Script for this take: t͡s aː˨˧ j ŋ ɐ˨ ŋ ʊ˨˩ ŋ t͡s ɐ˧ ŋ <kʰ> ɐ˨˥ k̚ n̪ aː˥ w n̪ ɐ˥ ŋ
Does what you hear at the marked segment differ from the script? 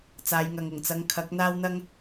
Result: no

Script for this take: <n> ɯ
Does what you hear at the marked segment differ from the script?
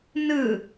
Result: no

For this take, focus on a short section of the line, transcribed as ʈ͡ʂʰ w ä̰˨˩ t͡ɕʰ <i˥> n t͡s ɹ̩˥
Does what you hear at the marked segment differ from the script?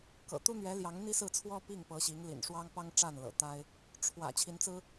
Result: yes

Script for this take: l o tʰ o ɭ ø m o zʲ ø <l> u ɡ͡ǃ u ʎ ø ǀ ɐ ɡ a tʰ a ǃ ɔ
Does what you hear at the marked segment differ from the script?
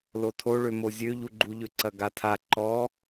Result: yes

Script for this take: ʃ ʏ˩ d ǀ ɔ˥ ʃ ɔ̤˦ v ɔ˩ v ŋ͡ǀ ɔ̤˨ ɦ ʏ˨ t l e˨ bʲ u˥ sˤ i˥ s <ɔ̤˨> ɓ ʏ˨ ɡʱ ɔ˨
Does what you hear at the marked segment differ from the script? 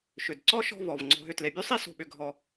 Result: yes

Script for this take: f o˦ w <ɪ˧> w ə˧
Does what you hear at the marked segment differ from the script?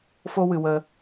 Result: yes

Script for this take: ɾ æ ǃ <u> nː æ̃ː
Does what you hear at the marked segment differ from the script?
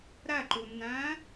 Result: no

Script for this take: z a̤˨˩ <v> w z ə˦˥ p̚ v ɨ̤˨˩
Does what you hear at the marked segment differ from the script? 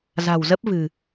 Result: yes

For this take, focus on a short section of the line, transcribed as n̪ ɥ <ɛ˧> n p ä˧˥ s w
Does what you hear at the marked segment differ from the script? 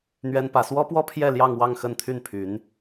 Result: yes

